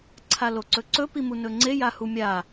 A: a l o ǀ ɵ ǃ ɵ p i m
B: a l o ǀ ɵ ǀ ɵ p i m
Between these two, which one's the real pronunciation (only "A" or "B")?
B